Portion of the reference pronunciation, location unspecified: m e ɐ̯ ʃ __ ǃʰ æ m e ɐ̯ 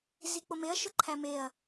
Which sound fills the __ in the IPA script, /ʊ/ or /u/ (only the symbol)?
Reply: ʊ